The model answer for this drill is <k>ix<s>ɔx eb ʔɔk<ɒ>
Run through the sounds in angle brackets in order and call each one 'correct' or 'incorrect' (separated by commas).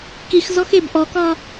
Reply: correct, incorrect, correct